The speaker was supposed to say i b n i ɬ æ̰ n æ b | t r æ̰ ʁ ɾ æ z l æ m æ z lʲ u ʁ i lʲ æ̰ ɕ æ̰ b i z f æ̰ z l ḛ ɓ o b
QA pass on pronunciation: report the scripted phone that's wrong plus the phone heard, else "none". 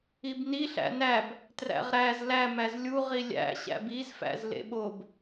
none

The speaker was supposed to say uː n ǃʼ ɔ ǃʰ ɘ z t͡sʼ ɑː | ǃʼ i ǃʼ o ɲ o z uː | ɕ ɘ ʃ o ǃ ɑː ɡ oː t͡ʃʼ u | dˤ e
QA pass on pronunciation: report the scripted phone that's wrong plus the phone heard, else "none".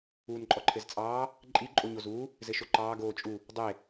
ɕ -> z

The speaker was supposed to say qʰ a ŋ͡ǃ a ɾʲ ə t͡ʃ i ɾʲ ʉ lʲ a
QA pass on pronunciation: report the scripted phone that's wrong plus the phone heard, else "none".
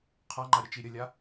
ʉ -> ə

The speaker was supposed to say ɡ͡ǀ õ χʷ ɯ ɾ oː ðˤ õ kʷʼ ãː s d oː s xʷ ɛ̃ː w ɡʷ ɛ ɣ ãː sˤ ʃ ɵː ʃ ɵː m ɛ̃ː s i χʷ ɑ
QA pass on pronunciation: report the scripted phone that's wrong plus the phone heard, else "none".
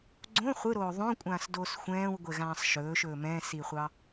none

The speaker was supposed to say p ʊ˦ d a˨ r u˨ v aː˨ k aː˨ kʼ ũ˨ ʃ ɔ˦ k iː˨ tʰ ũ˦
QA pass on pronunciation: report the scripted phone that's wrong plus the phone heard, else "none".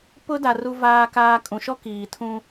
none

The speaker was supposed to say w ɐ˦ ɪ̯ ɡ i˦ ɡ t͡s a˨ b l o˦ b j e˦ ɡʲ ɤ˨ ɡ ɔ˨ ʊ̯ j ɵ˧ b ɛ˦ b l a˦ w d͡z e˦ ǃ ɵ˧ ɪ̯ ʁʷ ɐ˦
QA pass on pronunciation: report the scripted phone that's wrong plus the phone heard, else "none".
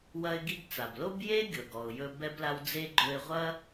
ǃ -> ɡ͡ǃ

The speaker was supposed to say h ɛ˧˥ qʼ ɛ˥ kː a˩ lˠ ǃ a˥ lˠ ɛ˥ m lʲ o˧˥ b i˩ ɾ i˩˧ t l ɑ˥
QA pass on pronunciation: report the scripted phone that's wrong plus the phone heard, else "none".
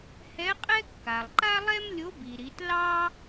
none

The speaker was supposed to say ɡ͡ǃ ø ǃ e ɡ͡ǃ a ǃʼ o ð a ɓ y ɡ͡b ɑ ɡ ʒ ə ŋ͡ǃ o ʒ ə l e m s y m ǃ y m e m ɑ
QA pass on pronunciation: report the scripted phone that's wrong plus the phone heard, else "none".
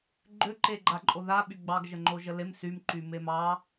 none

